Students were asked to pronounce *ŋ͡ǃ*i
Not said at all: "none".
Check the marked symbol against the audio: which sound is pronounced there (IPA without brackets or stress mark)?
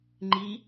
ŋ͡ǃ